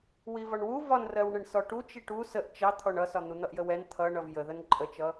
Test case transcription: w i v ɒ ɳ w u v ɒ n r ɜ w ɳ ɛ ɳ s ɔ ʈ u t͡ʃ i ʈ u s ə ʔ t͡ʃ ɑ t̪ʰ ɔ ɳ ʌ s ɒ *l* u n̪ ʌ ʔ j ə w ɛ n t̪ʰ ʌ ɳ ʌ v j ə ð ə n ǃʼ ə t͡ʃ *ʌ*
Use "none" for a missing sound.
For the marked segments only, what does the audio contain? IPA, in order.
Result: n̪, ʌ

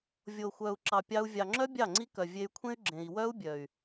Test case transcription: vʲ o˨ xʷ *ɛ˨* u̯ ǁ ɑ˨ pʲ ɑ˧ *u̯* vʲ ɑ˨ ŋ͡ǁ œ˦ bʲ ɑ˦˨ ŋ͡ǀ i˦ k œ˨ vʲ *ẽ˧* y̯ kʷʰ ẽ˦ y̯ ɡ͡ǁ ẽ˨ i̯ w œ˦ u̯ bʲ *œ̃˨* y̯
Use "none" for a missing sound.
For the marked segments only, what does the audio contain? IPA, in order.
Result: œ˨, u̯, e˧, œ˨

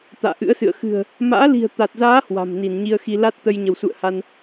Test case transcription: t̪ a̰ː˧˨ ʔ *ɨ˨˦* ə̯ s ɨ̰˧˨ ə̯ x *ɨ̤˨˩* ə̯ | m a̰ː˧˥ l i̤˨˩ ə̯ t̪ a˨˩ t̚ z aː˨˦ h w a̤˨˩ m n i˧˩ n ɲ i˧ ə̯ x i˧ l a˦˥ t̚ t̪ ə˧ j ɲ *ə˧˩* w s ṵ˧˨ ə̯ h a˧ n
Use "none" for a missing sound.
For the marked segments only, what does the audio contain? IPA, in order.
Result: ɨ̰˧˥, ɨ̤˨˩, ə˧˩

